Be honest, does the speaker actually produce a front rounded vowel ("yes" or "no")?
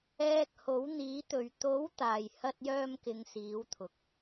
yes